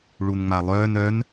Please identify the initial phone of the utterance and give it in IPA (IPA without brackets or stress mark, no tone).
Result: ɭ